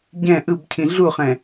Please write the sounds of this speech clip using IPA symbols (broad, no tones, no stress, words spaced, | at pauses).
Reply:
ɟɛ̃ ʔɯbcʰĩ ɮuχɛ̃